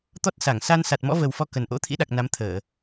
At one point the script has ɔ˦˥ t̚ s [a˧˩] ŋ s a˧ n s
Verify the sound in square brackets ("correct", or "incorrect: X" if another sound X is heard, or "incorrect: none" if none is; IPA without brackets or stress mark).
correct